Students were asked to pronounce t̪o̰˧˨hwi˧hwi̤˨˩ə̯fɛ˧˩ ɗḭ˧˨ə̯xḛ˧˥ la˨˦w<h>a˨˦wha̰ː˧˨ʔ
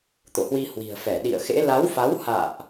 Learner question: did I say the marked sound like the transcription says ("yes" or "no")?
no